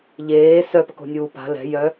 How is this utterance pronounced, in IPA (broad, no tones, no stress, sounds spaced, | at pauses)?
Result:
ʎ eː s œ p ə k o̤ nʲ uː p a̤ l ɛ̤ j œ